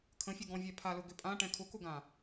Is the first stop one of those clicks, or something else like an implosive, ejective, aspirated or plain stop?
aspirated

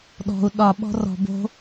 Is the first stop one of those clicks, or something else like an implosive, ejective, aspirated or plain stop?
implosive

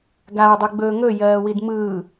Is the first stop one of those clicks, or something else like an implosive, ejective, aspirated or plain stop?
plain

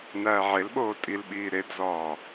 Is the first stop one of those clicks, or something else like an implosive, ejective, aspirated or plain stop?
implosive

